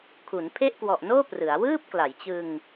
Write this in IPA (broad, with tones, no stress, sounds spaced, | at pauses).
kʰ u˩˦ n pʰ e˥˩ ʔ k w ɔ˨˩ ʔ n oː˥˩ p r ɯ˩˦ a̯ w ɯː˥˩ p̚ k l a˩˦ j t͡ɕ ɯ˧ ŋ